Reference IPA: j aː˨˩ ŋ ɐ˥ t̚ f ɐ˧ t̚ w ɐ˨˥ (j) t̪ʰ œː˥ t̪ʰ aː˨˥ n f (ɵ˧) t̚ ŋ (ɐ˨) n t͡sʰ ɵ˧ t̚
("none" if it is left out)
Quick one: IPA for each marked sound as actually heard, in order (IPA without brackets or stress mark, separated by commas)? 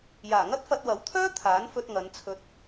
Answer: w, ɵ˧, ɐ˨˧